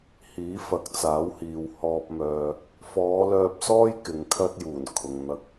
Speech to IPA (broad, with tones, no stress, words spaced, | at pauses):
hiː˨˥fɐ˨˥k̚t͡saː˨˥whiː˨w hɔː˧p̚mœː˧ | fɔː˨˧lœː˧p̚sɔː˥j kɪ˨˧ŋkʰɐ˥t̚juː˨˩n kʰʊ˨ŋ n̪ɐ˧k̚